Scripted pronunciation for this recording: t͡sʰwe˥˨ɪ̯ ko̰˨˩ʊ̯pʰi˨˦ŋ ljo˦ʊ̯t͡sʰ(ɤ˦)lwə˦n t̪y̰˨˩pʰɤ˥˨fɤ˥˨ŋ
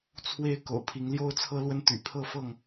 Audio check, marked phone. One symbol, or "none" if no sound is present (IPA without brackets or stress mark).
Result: ɤ˦